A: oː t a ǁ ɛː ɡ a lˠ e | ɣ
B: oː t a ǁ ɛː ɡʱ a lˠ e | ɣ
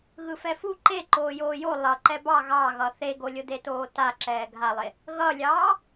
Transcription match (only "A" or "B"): B